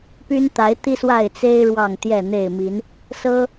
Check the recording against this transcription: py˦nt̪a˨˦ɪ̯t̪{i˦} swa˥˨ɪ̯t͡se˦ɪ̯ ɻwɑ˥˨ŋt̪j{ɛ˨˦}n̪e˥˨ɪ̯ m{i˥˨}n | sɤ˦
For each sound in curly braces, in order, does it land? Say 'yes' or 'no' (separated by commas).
yes, no, no